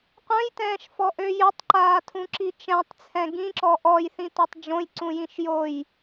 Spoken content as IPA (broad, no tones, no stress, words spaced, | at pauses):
qʷœ̃jtɛ̃ːʃfɔʔø jøtˤǃaːtʰũǁi t͡ʃɛ̃tˤt͡sʰɛ̃ ɡĩǁɔ ʔɔjθĩtɔtˤ d͡ʒõjǀũjĩʃ joj